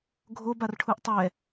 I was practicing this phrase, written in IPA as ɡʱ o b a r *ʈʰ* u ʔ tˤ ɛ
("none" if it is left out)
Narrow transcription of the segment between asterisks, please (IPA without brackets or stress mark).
ʈʰ